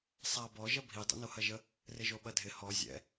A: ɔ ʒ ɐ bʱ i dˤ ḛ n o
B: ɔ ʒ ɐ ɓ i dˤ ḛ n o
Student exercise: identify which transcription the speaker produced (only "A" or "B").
A